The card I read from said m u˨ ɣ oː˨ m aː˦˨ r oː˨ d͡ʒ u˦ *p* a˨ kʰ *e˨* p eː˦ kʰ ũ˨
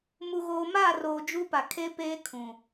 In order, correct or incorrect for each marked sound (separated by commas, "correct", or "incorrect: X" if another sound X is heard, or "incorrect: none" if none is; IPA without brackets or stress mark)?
correct, incorrect: e˦